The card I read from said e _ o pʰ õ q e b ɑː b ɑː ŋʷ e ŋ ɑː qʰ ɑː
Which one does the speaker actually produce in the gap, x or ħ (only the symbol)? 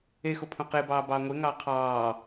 x